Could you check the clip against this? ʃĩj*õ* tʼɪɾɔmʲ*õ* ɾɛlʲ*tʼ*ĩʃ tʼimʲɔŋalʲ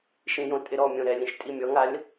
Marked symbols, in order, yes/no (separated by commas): yes, yes, no